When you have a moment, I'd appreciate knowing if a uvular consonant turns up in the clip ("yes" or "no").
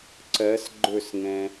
no